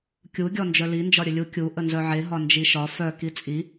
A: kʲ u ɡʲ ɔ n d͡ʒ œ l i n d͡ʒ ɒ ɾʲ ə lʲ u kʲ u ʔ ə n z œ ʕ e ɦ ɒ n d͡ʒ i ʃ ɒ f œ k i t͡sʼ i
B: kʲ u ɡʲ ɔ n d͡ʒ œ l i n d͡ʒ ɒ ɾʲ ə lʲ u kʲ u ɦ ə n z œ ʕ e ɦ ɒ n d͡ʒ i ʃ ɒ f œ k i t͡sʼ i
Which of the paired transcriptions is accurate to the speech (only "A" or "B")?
A